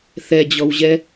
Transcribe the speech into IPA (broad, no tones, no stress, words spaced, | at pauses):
θɛd͡ʑɔwʑɛ